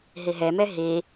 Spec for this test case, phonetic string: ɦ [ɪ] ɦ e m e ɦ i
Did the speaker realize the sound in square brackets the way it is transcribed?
no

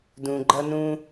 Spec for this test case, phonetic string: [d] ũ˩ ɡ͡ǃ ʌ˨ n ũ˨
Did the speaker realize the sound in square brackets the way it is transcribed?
yes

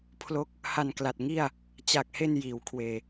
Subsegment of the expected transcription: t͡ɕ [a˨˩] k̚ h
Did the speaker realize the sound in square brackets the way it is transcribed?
yes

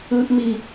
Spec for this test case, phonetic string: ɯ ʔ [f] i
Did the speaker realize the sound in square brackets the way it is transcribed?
no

